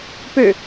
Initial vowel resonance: oral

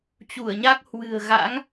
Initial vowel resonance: oral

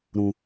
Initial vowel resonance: nasal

